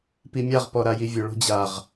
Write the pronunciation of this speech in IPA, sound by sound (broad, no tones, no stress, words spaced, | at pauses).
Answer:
pimʲaʁ pɔɾajivʲɵ ɭo̤d͡ʑaʁ